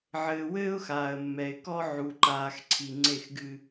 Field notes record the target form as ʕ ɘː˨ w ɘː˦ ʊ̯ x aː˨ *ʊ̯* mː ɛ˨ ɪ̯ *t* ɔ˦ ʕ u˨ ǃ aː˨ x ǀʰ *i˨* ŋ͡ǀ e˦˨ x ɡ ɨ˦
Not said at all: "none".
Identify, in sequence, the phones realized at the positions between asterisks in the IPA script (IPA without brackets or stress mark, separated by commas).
ə̯, k, i˨